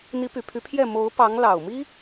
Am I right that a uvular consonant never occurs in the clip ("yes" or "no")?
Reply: yes